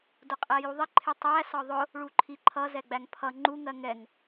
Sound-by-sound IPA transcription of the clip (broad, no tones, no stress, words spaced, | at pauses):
dʊqʼæjuðˤɪ ǃʰɪtˤæ sɒðˤʊ | ɭuǃʰiǃʰʌ zɛɡ͡bæŋpʰʌ ŋ͡ǃu ŋɜŋɛŋ